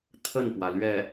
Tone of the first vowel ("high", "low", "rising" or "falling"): falling